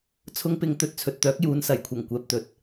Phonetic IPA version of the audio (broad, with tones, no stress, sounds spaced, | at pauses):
t͡sʰ ʊ˨˧ ŋ p ɪ˨ ŋ t̪ ɵ˧ t̚ t͡sʰ ɵ˨ t̚ t̪ œː˨˥ k̚ j uː˨˧ n s ɐ˨˩ j kʷʰ ɐ˨˩ ŋ kʷ ɛː˨ p̚ t̪ ɵ˨˥ t̚